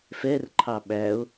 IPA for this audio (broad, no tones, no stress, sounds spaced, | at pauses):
f ɛ r ǃʰ ɑ ɓ æ o̯